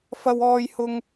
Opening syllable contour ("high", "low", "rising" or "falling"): high